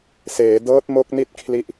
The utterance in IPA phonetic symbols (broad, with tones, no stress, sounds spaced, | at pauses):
s eː˩˦ d ɤː˦˥ t̚ m o˦˥ k̚ n i˥˩ t̚ kʰ l i˦˥ ʔ